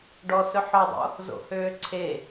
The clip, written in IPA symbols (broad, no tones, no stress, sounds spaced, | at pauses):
ɖ ɔ s ɵ ħ ɔ dˤ o̰ | z o̰ h øː ǀʰ e